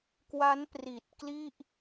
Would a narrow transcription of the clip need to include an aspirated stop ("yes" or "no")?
no